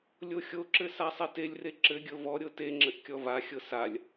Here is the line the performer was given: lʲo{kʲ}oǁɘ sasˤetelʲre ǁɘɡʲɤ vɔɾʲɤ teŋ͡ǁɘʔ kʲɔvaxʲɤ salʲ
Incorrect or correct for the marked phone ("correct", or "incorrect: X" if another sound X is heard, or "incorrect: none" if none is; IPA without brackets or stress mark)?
incorrect: xʲ